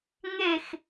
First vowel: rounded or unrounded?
unrounded